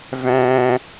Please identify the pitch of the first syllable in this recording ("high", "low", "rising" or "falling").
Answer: high